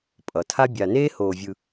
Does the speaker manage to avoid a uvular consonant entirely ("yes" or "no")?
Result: yes